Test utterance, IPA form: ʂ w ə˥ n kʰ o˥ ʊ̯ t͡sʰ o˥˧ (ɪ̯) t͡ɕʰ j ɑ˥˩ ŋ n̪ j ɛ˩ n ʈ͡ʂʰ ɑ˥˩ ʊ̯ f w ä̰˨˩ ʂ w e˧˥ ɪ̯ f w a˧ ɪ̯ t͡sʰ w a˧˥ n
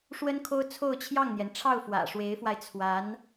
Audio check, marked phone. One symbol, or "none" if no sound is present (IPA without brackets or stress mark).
ʊ̯